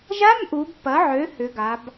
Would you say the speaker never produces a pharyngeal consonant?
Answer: no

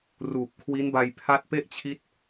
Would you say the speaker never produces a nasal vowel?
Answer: yes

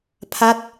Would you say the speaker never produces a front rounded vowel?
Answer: yes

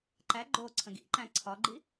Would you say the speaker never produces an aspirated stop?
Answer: no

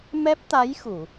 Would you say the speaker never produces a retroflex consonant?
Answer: yes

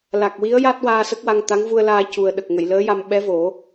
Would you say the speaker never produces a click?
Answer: yes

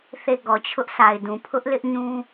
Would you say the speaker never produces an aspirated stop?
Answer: no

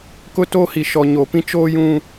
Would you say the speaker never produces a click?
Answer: yes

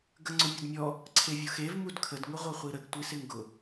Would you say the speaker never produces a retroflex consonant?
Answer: yes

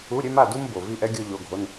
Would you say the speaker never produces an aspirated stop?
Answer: yes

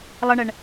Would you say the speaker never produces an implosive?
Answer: yes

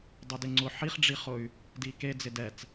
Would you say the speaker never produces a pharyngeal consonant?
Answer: no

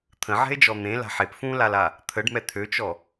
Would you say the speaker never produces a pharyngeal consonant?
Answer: no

